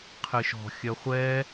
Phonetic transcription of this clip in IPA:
qʰ ɨ ʃ ɔ̤ xʲ œ χʷ ɛ

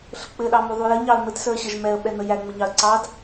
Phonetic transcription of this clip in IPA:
ɬ ə k͡p ɘ ɗ ɑ m u ðˤ u j ɘ ɲ ɑ ə̯ m ɘ t s ə˞ ɕ ə ʒ m ɛ ə̯ ɓ ɛ n ə j æ ŋ͡m ə ɲ ɑ ə̯ ǀ ɑ d

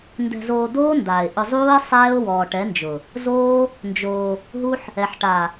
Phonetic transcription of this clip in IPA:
n d ɛ̤˧ z oː˧ d oː˦ n d aː˨ ɪ̯ ʔ ʊ˧ zˤ uː˦ ə̯ sˤ ɛː˦ ʊ̯ w ɔː˨ ʈ ɛ˨˦ n d͡ʒ ʊ˨ | z oː˦ | n d͡ʒ oː˧ | ɦ u˦ ħ | ɛ˨ ħ ʈ a˨

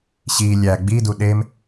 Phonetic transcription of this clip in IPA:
ɕ i lʲ æ ɡ͡b i d u ɗ e m

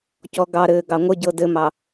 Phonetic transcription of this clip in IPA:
c ɔ ɡ ɑ ɾ ɘː ɡ ɑ ŋʷ ə ɟ ɤ d ɘ m ɑ

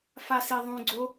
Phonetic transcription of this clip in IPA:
f a s i ðˤ ũ ɡ͡ǀ o

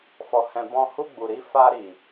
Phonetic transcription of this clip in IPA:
f ɔ˨ h ɛ̃˨ b ɔ̃˧ h u˧ ɡ͡b u˨ ɾ i˧ f a˧ ɾ i˨

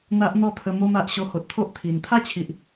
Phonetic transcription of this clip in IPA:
n̪ a˦ ʔ n̪ ɔ˥˧ t̪ʰ ə˧ m o˧ m a˨ ʔ ɕ o˧ h o˨ t̚ t̪ʰ o˦ ʔ t̪ʰ i˨˩ n t̪ʰ a˥˧ t͡ɕʰ i˨ ʔ

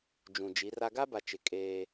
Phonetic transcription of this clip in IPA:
d͡ʒ ũ˨ d͡ʒ i˨˦ r a˦ ɡ a˦ b a˨ t͡ʃ ɪ˨ kʼ eː˦

